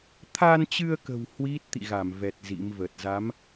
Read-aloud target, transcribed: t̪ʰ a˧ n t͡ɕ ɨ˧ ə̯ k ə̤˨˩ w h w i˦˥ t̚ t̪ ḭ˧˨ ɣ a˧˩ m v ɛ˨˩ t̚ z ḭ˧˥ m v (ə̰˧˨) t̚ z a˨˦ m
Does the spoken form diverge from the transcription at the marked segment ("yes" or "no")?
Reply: yes